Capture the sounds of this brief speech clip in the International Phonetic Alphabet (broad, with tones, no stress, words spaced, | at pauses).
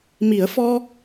mi˨˩˦ə̯fɔ˧